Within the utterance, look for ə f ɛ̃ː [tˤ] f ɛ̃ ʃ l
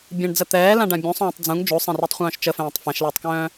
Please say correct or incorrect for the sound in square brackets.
correct